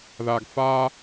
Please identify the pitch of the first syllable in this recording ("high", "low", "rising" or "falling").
low